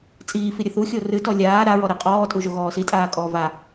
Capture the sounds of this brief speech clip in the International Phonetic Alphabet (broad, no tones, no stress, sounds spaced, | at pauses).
t͡sʼ iː f i ɾʲ ɘ θ u xʲ o r ɨ t ɔ lʲ aː ɾ a ɹ ɔ ɾ ɘ qʼ ɔː tʼ u ʒ o ɣ ɔː s i tʼ aː kʼ ɔː v a